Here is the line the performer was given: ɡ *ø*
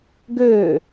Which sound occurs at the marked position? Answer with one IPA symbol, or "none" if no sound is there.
ø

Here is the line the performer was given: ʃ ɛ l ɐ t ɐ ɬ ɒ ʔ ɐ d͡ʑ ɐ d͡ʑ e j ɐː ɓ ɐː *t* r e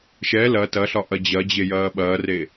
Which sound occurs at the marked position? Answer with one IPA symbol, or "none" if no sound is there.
none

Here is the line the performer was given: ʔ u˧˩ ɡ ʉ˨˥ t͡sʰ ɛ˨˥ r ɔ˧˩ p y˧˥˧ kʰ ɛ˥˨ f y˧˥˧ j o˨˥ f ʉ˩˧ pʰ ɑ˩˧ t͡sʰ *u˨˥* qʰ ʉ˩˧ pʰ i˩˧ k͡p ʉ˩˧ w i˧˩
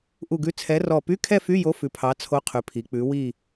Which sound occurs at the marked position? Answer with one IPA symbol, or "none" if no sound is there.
o˨˥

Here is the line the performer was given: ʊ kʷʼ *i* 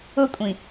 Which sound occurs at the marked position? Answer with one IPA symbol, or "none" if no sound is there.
ĩ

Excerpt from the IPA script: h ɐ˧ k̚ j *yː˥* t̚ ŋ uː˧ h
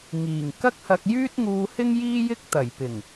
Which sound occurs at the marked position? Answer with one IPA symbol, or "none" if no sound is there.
yː˥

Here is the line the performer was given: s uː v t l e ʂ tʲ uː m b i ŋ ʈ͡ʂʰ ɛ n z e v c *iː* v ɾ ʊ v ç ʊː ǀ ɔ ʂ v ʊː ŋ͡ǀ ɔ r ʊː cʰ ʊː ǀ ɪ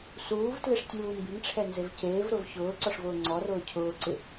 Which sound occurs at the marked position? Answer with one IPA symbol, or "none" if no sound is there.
eː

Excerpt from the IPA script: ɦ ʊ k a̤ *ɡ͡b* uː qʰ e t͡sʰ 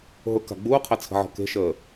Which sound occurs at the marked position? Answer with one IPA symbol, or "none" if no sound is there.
ɡ͡b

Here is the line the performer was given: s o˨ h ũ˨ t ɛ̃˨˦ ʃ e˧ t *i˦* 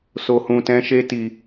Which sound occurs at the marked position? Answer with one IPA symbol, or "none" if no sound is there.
i˨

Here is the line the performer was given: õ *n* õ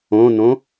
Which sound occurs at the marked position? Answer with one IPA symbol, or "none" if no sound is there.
n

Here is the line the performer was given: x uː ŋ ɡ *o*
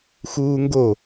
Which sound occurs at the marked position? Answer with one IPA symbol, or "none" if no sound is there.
o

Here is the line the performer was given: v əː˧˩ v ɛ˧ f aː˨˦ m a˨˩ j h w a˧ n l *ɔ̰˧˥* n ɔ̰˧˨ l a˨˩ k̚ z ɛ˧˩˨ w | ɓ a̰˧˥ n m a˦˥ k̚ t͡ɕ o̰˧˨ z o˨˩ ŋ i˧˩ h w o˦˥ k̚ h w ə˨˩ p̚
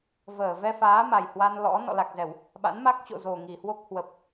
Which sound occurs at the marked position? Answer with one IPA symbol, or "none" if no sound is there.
ɔ̰˧˥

